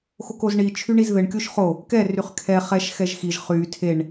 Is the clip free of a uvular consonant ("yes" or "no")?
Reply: no